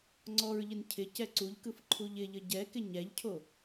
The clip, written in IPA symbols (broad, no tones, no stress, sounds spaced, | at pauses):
ŋ͡ǀ ɔ ɹ ʎ ɪ n cʰ ɪ c ɛ ǀ u ʎ k ɯ f ǃʰ u ʎ ɪ ʎ ə ɟ ɛ k ɪ ɲ ɛ ʎ cʰ o